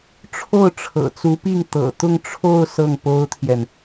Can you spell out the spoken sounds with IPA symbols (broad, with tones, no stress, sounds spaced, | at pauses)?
ʈ͡ʂʰ o˥˩ ʊ̯ ʈ͡ʂʰ ɤ̰˨˩ t͡s u˧˥ p i˥˩ ŋ t̪ ɤ̰˨˩ t̪ ʊ˥˧ ŋ ʈ͡ʂʰ o˥˧ ʊ̯ s ɤ˥˩ ŋ p o˥ ʊ̯ t̪ʰ j ɛ˨ n